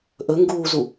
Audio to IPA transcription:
ʔ ɵ ŋ ɡ uː z u

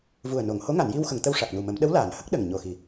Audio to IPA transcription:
v u˨˩ ə̯ n o˨˩˨ ŋ h o˧˥ ŋ a˨˩˨ n j i˧ w x ə˨˩˨ ŋ t̪ ə˧ w ʂ a˨˩ k̚ n u˨˩ m ə˨˩˦ m ɗ ə˧˥ w l aː˨˩˨ n h ə˦˥ k̚ ɗ ə˨˩ ŋ ɲ o˨˩ x i˨˩

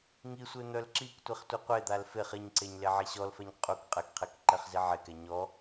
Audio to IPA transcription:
ŋ i sʷ e n̪ œ l ǁ i k tʷ i χ tʷ ɛ qʷ e d̪ a l f e χ i ɲ ǀ e ɲ l e ʕ i ɕ ɔ l f ɛ ɲ qʼ u k qʼ ɛ k qʰ e k ǃ ɛ χ z i ʕ e k ɛ ɲ ɔ

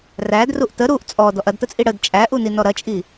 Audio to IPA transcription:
r æ d r u ʔ t ə ɾ u ʔ t͡sʼ ɔ d ɔ ʔ ɐ d t ə t͡sʼ i ɽ ə d t͡ʃʼ æ ʔ u n i n ɔ ɾ ɐ t͡ʃʼ i

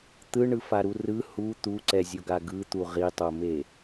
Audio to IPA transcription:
t̪ ɯ ɳ ɯ f a ɾ u r ɯ h u t̪ u ǀ ɛ zʲ o ɡ a ɡ ɯ t̪ u ʁ i tˤ o m e

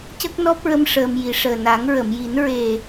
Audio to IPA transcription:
c ə˦˥ k̚ n ɔ˦˥ p̚ ɹ ə˧ m ʂ əː˧ m j i˨˩ ʂ əː˨˩ n a˨˩˦ ŋ ɹ ə˨˩˨ m j i˨˩˦ n ɹ e˨˩

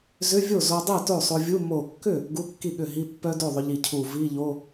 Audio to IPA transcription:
z ʏ˧˥˧ vʲ o˥˩ z o˧ dˤ i˥˩ t o˥˩ sˤ o˧ vʲ u˧˥˧ m o˧˩ kː ʏ˥˩ | ɡ u˧˥˧ kː i˥˩ ɠ ʏ˥˩ ɦ i˧˥˧ pː œ˦˥ d o˥˩ ðˤ ʏ˧ ʎ i˧˩ cʰ u˧˩ v i˧˥˧ ʎ o˧˥˧

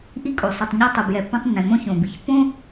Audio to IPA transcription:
ʔ i˧ kʼ o˩ sˤ u˩ tˤ ɲ a˧ tˤ ɯ˩ b j ɛ˩ pː õ˧ tˤ nː ẽ˩ m õ˧ ç õ˩ b i˩ ç pː õ˥

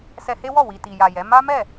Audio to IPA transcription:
s ɛ˧ h e˦ w ɔ˦˨ w i˨ t i˨ j a˨ j ɛ˨˦ m a˦ m ɛ˦˨

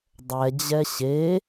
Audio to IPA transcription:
dˤ ɛ d͡ʑ ɛ ɕ e

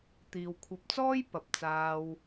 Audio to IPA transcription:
t̪ iː˨ w kʷʰ ɐ˧ p̚ t͡s ɔː˥ j p ɐ˨ p̚ t͡s aː˧ w

